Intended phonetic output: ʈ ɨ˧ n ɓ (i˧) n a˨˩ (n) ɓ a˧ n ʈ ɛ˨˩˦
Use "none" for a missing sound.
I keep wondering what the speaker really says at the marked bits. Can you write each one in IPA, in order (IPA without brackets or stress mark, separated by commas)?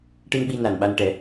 i˧, n